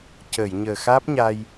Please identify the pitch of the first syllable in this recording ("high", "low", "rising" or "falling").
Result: low